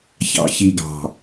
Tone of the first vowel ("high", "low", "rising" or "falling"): low